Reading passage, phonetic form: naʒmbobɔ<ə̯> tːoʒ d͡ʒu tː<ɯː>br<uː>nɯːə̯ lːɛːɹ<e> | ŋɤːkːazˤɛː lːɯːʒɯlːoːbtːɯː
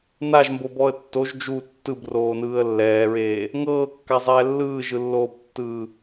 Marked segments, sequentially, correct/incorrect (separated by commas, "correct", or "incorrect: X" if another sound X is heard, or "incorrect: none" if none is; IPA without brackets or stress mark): correct, incorrect: ɯ, incorrect: oː, incorrect: eː